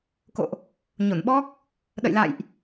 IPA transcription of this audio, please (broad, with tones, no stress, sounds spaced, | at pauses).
k o̰˧˨ ʔ | ɲ o˧˩ n ɓ ɔ˦˥ k̚ | ɗ ə̰˧˨ j l a̰˧˨ j ʔ